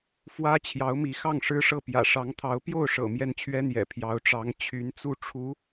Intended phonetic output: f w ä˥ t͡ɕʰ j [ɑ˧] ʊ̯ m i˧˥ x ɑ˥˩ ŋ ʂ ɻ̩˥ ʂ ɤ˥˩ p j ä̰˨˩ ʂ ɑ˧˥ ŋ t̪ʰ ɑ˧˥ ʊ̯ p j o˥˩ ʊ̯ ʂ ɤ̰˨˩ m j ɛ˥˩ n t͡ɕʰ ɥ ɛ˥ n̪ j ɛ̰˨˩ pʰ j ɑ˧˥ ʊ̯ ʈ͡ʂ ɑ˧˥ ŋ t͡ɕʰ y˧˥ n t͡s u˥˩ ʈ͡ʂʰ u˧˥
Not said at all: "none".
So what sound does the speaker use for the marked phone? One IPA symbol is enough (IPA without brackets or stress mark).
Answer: ɑ˧˥